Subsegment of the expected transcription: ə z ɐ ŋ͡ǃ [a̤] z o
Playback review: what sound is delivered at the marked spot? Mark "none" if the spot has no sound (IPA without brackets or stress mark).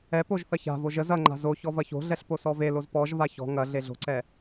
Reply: a̤